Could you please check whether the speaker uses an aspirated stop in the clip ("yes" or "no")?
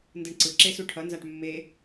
yes